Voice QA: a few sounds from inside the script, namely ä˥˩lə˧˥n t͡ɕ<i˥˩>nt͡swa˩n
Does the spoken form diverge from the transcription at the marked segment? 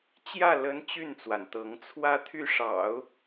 yes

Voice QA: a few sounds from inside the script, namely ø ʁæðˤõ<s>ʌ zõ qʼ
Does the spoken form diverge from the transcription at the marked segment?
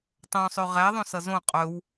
no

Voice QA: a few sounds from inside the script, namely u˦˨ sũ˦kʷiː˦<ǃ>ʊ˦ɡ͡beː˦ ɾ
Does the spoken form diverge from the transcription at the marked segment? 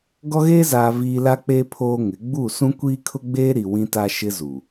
yes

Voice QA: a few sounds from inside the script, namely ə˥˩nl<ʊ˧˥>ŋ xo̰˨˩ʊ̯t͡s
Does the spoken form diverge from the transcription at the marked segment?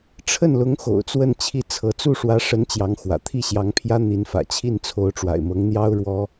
no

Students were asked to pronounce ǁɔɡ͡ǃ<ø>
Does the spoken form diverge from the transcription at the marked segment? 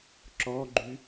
yes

